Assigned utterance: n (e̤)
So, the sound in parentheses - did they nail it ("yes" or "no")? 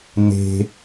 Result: yes